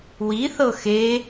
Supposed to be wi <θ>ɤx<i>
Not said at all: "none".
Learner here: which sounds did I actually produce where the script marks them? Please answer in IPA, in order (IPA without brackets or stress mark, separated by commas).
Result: θ, e